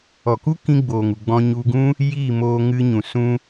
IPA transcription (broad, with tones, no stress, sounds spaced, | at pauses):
ɔ˨ k u˦ k ĩ˦ ɡ͡b oː˨ ŋ u˨ ɡ͡b ɔ̃˧ ɲ u˧ ɡ ũ˦ | j iː˦˨ m oː˧ ŋ ɨ˧ ɲ ũ˨ s ũ˧